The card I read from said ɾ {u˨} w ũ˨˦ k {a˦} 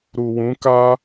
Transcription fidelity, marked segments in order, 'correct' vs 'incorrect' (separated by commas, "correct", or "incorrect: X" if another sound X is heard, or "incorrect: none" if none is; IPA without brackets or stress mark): correct, correct